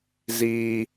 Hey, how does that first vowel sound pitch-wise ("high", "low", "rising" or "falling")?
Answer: low